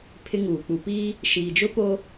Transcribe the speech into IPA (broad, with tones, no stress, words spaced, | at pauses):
pʰɪ˦ŋuː˨ k͡pu˨piː˦ | ʃiː˨d͡ʒʊ˦ po˦